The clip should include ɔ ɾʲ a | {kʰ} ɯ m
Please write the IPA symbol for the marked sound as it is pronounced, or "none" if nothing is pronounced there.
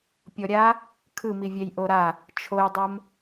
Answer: kʰ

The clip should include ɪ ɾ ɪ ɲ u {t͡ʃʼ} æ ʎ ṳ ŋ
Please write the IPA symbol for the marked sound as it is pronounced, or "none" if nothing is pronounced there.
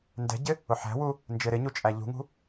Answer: t͡ʃʼ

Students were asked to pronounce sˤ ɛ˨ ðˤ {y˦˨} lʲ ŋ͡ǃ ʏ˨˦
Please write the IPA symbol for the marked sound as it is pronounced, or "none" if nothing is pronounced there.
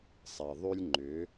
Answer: y˦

